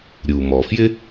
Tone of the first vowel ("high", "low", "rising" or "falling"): low